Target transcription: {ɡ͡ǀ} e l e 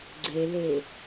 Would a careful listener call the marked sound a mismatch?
no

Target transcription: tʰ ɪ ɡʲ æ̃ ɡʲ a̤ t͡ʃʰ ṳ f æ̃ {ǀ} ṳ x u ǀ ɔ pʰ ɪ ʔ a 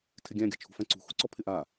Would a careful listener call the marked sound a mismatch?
no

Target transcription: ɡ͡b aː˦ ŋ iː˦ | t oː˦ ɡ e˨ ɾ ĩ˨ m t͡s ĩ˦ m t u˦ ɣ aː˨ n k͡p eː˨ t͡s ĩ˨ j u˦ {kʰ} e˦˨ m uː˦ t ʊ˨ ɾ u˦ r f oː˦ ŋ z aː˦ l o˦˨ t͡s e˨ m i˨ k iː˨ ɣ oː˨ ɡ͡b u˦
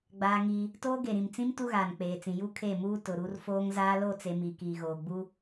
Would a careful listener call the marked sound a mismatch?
no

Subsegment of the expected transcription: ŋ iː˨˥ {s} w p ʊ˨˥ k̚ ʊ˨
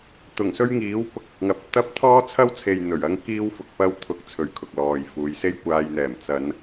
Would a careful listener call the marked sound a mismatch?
yes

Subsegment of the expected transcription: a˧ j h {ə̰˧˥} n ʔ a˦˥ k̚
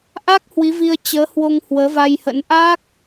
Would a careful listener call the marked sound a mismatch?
no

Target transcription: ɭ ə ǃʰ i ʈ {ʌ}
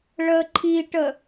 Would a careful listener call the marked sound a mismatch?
yes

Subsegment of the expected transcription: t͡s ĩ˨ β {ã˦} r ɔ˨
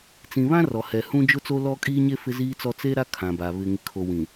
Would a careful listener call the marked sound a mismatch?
no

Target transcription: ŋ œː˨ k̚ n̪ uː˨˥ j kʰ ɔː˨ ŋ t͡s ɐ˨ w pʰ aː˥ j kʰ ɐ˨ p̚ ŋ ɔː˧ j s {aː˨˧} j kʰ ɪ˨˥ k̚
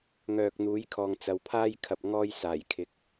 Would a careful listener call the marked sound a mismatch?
yes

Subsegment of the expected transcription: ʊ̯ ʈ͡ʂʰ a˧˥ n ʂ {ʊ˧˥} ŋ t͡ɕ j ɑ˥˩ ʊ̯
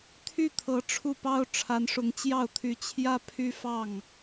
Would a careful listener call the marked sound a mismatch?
no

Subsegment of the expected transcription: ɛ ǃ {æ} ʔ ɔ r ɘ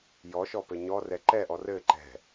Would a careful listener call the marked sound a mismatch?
yes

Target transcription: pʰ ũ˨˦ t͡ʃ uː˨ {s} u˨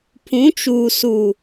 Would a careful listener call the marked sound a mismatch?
no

